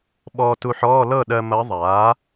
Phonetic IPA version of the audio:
ɓ ɔː˧ t u˧ ħ ɔː˧˥˧ l ɤ˥˩ ɗ ɜ˧ m ɐ˧˥ ðˤ aː˩˥

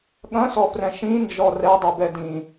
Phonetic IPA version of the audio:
ɠ ɐ̃ s ɔ f r ɛ̃ ʃ ĩ n d͡ʒ ɔ r ɛ dˤ ɛ b ɛ d ĩ

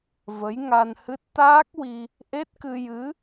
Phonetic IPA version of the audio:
v ə˧˥ j ŋ a˧ n h ɨ˦˥ t̚ t̪ aː˦˥ k̚ w i˧ | ʔ e˦˥ t̚ k ɨ˧ j ɨ˧˥

